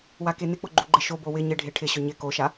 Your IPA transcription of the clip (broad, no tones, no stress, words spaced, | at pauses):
wakenɪk͡pʊ ɡ͡ǃuɡ͡ǃɪʃobo wɪ ɲɪɖʱe ʈʰɪɕʊ ɲɪ koʃa